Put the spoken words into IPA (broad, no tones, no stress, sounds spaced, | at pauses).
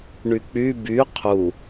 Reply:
ɳ y k͡p y b y qʰ u